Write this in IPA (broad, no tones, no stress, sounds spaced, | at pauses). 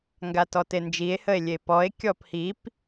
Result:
ŋ ɡ a t ɔ t e n d͡ʒ i e̯ h ə e̯ lʲ e p ɔ e̯ kʲ ɔ p h i p